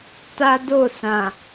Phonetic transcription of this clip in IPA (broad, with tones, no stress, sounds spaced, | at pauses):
t a˦ d o˦˨ s ã˨